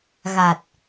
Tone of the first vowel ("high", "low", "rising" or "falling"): low